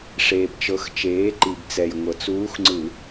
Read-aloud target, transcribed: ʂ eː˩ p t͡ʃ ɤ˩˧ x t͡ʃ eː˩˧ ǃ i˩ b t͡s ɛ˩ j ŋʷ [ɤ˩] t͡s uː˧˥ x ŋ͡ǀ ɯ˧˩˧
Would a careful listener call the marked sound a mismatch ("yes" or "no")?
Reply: no